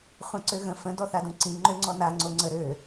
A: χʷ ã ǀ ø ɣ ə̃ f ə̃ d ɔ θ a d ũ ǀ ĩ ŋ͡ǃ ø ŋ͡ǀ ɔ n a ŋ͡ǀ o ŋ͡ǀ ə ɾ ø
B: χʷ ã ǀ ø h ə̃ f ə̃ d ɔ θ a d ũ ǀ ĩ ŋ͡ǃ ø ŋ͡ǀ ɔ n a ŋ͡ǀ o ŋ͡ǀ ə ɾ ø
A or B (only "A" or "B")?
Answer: A